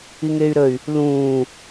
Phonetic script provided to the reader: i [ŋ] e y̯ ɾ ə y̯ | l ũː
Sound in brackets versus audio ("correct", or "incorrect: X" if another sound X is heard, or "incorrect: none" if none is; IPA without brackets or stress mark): correct